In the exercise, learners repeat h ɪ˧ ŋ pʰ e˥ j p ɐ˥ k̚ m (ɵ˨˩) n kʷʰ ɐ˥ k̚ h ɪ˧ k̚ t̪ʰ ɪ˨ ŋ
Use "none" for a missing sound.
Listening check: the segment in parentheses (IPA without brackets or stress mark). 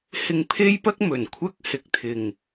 ɵ˨˩